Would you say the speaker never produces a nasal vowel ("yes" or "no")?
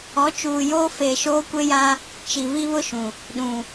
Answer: no